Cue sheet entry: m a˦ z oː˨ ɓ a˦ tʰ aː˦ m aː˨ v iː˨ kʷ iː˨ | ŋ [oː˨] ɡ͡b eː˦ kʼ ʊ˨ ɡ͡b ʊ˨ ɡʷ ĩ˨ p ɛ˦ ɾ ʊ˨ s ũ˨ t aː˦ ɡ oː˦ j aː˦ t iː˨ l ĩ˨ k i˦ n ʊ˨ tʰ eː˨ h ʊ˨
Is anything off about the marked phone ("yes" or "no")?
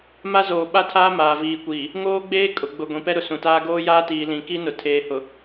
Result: yes